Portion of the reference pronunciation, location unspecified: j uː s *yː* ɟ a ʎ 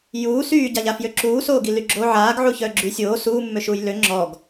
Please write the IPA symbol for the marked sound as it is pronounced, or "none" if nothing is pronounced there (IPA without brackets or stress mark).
yː